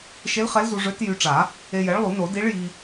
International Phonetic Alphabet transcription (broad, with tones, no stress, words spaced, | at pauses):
ʃe˧˥lχɛ˧˥lzu˧ ʐø˧˥t jy˧ʈ͡ʂa˨˩˦ | e˧jɛ˩˥ɭlˠu˨˩˦no˨˩˦ di˧˥ɭji˧